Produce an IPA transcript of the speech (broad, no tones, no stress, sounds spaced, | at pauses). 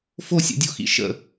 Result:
f o sʲ ṵ dʲ o x ḭ ʃ ə̰